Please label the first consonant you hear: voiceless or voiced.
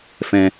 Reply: voiceless